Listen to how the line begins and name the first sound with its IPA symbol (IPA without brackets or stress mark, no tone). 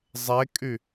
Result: zˤ